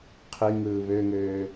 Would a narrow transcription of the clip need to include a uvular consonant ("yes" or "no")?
yes